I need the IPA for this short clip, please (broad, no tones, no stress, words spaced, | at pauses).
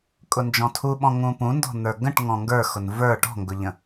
kʼʊnd͡ʒɔ̃tʰuɓɔ̃ ŋũpũndɔ̤ n̪ə˞ɡə̃ʈ ŋɔ̃ŋɡə˞xʊn və˞ ʈɔ̤ŋɡʊʎə̃